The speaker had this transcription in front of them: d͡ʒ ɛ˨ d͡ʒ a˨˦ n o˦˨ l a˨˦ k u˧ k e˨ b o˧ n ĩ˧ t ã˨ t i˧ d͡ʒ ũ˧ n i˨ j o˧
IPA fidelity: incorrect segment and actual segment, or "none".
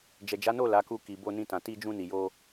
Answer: e˨ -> i˨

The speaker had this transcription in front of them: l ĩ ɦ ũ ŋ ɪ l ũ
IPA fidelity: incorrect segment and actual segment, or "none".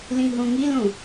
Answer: ɪ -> i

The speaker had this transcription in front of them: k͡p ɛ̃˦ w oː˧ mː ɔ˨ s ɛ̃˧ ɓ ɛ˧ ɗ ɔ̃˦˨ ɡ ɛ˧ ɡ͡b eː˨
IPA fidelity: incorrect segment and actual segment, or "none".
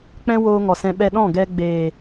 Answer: mː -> ŋ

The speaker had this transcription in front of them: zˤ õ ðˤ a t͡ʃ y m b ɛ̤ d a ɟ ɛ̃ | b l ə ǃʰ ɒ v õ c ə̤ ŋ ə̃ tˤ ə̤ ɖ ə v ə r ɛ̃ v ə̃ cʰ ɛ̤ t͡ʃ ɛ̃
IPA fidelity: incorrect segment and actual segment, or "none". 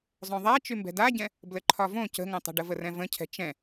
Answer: none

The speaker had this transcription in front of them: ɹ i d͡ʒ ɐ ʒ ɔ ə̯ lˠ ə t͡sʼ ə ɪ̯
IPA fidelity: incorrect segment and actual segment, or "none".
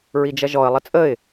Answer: none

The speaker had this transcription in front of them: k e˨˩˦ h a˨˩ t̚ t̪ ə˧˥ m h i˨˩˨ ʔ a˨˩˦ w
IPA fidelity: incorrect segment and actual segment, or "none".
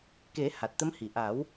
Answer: none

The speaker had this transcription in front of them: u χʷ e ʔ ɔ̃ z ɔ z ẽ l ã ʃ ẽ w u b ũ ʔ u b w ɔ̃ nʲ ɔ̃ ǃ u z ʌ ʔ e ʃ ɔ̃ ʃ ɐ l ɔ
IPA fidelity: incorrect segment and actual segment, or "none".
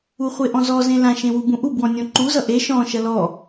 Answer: none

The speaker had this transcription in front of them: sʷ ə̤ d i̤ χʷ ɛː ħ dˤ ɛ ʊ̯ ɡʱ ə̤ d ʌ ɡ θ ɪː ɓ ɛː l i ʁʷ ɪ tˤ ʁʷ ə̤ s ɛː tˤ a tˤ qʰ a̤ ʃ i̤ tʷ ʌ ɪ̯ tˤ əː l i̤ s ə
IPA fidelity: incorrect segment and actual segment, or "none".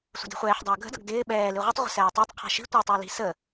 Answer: θ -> d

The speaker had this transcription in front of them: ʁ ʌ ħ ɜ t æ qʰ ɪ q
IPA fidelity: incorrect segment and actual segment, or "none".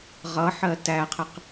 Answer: none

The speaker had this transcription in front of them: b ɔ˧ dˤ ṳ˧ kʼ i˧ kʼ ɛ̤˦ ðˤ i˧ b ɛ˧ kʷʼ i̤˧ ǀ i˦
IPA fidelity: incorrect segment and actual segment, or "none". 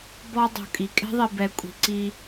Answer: none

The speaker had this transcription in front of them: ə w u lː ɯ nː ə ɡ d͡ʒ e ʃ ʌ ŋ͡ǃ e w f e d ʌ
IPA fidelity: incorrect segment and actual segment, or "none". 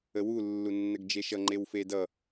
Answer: ɯ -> u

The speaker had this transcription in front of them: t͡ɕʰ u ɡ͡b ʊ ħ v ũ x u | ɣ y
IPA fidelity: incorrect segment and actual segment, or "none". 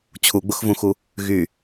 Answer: ħ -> x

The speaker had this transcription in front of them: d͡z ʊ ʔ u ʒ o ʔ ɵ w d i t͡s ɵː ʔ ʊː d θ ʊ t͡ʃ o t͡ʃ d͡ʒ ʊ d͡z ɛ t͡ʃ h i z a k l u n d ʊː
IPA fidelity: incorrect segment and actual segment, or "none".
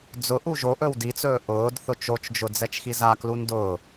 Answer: h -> x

